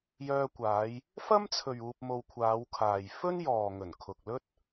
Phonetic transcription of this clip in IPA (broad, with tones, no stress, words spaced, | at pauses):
jœː˧kʷaː˨˧j | fɐ˥mt͡sʰɵ˨ɥ uː˧p̚mo˧wkʷʰaː˨˧wkʰaː˨j fɵ˥njɔː˨ŋɵ˨˩n kʰʊ˨k̚lɵ˥t̚